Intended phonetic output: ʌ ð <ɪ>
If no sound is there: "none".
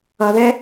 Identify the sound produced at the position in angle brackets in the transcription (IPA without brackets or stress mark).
ɛ